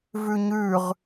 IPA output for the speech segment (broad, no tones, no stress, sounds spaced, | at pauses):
v ʉ ɲ ʉ ʁ